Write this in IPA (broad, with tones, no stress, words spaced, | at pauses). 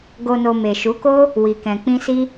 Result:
ɡo˨no˨ me˨ʃu˨˦ko˦ | wi˨kɛ̃˨k͡pĩ˧ si˦